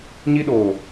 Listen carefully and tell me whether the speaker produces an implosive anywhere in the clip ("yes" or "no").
yes